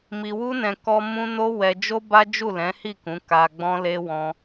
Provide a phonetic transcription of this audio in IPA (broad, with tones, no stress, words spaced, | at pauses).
mi˧wu˦nɛ̃˧ kɔ˧ mũ˦ no˦wɛ˧d͡ʒo˦ba˦ d͡ʒu˦˨lɛ̃˨˦hi˦˨kũ˨˦ ka˧ ɡ͡bɔ̃˧le˧wɔ̃˧